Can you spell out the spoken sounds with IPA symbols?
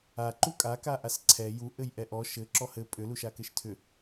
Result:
a ǃukʼa kaʔasǀʰɛ ju ʔɘjʔɛʔɔ ʃɘ ǁɔhɘ pʼʏ luʃakɘʃtʰʏ

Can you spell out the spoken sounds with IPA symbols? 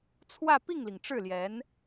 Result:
t͡sʰwä˥˧ pi˥˩ŋli˩ŋ ʈ͡ʂɻ̩˥˩ljɛ˧˥n

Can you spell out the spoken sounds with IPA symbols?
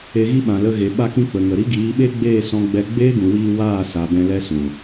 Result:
e˧ɣi˦ɓã˨lə˧ ɣe˨ ɓa˧kĩ˧ k͡pə˨ŋə˨ɾi˦ ɡiː˨˦ɓe˦ ɡ͡beː˦˨sɔ̃˧ɡ͡bɛ˧ ɡ͡beː˦ɡũ˨wiː˧ waː˦˨sa˨ bɛ̃˧ lɛ˧sũ˨

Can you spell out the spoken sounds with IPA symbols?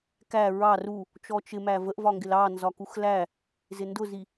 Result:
kæ ɹɑr u | t͡ʃɔt͡ʃɪmæ vəʔvɒŋɡɪl ɑ nzɒkuxlæ | zɪndʊzi

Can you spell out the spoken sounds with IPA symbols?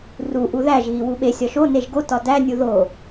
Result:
ru ʔuðæʒ ɣiwuɓe sʲɒʃo neʒɡo tɒdæ nʲuðo

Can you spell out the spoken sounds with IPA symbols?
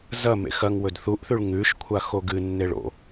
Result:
zɐ mḛxɐŋwɵd θuʔθʉɭ ŋʉʃkʷʰa xoɡɨnːe ɭo̰

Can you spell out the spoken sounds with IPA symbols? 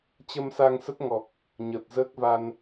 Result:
t͡ɕə˧msa˧ŋsə˦˥t̚ŋɔ˨˩k̚ | ɲəː˨˩t̚zəː˦˥k̚va˧n

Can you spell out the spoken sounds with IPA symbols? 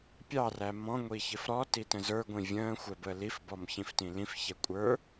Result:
pʲɑræ mɔ̃ŋʷiçɪf ɾɔ titə̃zə˞ɡʷĩ vʲə̃ː xʷɛbəːlif bɔmçĩftĩlĩf çɛkʷʼə˞

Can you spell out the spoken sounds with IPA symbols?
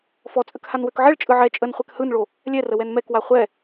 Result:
fɔt͡sʼək hanwøkʕɛɭ t͡ʃʼɯʕɛ t͡ʃʼənχʷɛk hɯnɭo | lʲɛrə wɛnmɛkwa χʷɛ

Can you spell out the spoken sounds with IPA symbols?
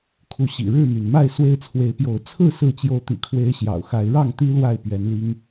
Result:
kʰu˨˦ɕḭ˨˩ ɻɻ̩˥˨my˩nma˥˨ɪ̯ swe˦ɪ̯t͡sʰwe˨˦ɪ̯pjo˨˦ʊ̯ t͡sʰɹ̩˥˨ sɹ̩˥˨t͡ɕjo˦ʊ̯ t̪ḭ˨˩ kʰwe˦ɪ̯ɕjɑ̰˨˩ʊ̯ xa˨˦ɪ̯ ɻɑ˥˨ŋt̪i˦ lwa˥˨ɪ̯pɥɛ˨˦nli˦ŋ

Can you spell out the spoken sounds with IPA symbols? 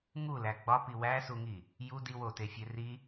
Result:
ŋulæ ɡ͡bɒpi wæsuŋi | ju diwotefʲe ri

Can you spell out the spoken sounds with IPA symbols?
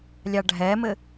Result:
lʲɑɖʱɛmɘ

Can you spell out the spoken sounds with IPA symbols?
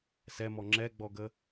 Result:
sɛmɔ ŋ͡ǁɛɡ͡bɔɡə

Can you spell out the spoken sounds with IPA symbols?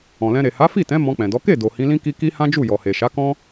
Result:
ɔ̃˨lɛ̃˧ɾe˨ ha˨˦fi˦˨tɛ̃˨˦ mɔ̃˧k͡pɛ̃˨dɔ˨˦ ke˦˨ do˨hĩ˨˦lĩ˦ki˦ ki˦ hã˦d͡ʒu˦˨ jɔ˨he˨ʃa˨˦kɔ̃˦

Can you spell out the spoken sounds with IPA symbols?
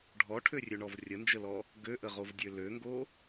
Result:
ɖʱɔʈʰørʲøɳɔv rʲənd͡ʒəlɔ | ɡøʔəʁovdʲø løŋɡo

